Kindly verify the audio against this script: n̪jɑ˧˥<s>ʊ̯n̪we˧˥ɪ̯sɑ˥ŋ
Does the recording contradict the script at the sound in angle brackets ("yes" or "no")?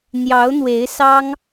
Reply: yes